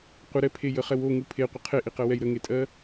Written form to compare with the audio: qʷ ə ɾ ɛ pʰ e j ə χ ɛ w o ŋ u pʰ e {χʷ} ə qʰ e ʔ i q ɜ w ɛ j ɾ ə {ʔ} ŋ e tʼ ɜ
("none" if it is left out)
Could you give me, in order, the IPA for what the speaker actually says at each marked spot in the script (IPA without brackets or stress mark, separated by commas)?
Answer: qʷ, none